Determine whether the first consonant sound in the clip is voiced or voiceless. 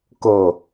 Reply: voiceless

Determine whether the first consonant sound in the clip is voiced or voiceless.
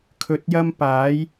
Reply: voiceless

